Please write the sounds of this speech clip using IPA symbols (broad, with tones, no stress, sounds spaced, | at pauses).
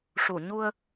ʂ u˨˩˨ ɲ u˧ ə̯